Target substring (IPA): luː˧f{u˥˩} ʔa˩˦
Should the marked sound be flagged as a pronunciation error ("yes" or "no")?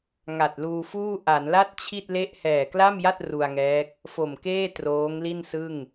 yes